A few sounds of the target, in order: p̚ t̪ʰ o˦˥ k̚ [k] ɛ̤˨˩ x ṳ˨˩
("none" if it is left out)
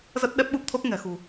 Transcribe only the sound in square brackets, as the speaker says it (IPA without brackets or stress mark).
ŋ